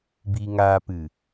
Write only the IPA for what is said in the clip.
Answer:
b iː˧ ŋ aː˧ p ɨ˨

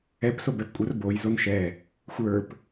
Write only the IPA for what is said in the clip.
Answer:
ɛ p s o b ɛ p kʷʼ ə r b o j z o n ʃ ɛ | xʷ ə˞ p

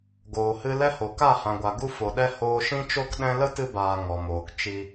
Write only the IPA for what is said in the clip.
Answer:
ɡ oː˨ h ɨ˧ l ɛ˦ h o˨ k a˦˨ h ã˨ ɡʷ a˨ ɡ u˧ f o˨ ɗ ɛ˧ h oː˧ ʃ ĩ˧ t͡ʃ o˧ k ɗ ɛ̃˧ l ə˦ t ɨ˧ b aː˨ ŋ ɔ˨ m oː˨ k t͡ʃ i˧

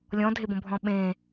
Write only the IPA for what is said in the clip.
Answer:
lʲ ɔ̃ dʱ e b õ bʱ ɔ̃ ɓ ẽ

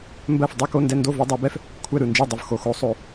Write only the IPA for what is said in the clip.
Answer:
m b ɜ˥˩ f dˤ ɨ˥˧ k o˧˥˧ n d ɛ˥˧ n d o˥˩ v o˥˧ dˤ o˨˦ b ɛ˥˧ f | kʷʰ ɛ˥˩ ɾ ɯ˥˩ n d͡ʒ ɨ˥˩ dˤ ɯ˨ v x o˨ x o˨˦ sˤ o˨

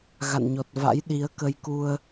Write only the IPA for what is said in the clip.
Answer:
ɣ a̰˧˨ n ɲ ɔ˨˩ t̚ v a̰˧˥ j ɗ i˨˦ ə̯ k ə˧ j k u˧ ə̯

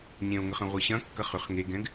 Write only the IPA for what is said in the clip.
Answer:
ɲ ẽ o̯ ŋ ə χ ɐ̃ ʁʷ ɨ ɕ ɐ̃ kː ɐ χ ʏ χ ŋ e ɡ ɛ̃ ɡ

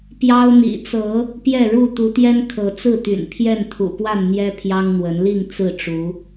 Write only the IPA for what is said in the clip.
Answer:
p j ɑ˦ ʊ̯ n̪ ḭ˨˩ t͡s ɤ˨˦ | p j ɛ˥˨ ɻ u˥˨ t̪ u˨˦ t̪ j ɛ˦ n kʰ ɤ˨˦ t͡s ɹ̩˥˨ t̪ y̰˨˩ n pʰ j ɛ˥˨ n t̪ʰ ṵ˨˩ p w a˥˨ n n̪ j ɛ˦ pʰ j ɑ˦ ŋ n̪ w ə˨˦ n l i˥˨ ŋ t͡s ɹ̩˥˨ ʈ͡ʂ u˨˦

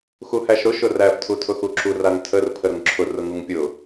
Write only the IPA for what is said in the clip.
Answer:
x u h æ ʃ ɾ ʊ ʃ ʊ r æ f tʰ u tʰ ʊ x u ǁ u r a ŋ tʰ ə r pʰ ə ɾ ʊ ŋ ǁʰ ʊ r ʊ ŋ u ŋ pʲ ʊ

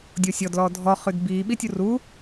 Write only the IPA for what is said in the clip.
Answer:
dʲ o sʲ ɔ d l ɔː dʱ ɔ χ ʉ d b iː ɓ i tʲ u r u

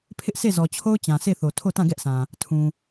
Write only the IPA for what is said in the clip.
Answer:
pʰ ɪ˦ ʔ sʰ e˦˨ z ɔ˨ t͡ɕʰ o˦ ʊ̯ t͡ɕ ã˨ sʰ e˦˨ θ o˨ tʰ o˦˨ t ã˦˨ ɡ ɛ˦ ʔ sʰ ã˨ | tʰ ũ˨

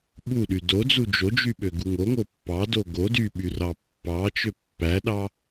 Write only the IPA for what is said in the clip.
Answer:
ɓ u ɗ y d o d͡z u d͡ʒ o d͡ʒ y ɓ ø ɡ u ŋ o ŋ o pː ɑ d o ɡ o d y ɓ y r ɑ pː ɑ t͡ʃ ø pː æ ɗ ɑ

